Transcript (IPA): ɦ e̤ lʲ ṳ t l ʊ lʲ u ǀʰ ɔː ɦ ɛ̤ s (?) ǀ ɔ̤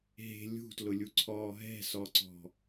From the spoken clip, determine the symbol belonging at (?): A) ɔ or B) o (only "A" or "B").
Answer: A